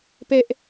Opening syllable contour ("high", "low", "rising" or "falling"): high